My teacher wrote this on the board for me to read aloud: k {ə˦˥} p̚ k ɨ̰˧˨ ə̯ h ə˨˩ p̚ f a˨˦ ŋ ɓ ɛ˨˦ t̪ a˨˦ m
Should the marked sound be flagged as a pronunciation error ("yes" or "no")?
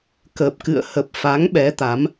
yes